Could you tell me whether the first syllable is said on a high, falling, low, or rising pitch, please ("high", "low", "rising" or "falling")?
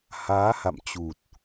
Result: rising